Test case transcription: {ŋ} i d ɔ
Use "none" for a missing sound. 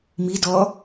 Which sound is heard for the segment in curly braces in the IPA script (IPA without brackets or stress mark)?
m